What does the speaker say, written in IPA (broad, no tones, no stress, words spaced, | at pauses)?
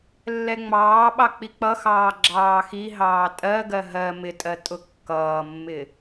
lːɛŋ͡mɑːɓɑ k͡pik͡pʌxɑː ɡ͡ǁɑːxiɦɑː tʼɜɡɜ ɦɜ mɪtʼɜ tʼʊkːʌːmːɪ